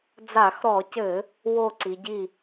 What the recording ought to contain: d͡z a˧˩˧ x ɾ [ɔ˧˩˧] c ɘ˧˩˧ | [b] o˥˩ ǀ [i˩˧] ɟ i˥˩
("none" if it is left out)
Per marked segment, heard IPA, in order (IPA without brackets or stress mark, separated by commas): ɔ˧˩˧, w, i˩˧